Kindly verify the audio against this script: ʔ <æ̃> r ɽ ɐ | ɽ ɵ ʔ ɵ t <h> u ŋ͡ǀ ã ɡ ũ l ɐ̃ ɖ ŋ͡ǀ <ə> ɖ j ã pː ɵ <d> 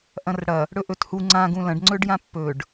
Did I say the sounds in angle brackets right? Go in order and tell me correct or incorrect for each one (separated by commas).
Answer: incorrect, correct, incorrect, incorrect